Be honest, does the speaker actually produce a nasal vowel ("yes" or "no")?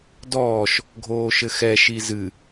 no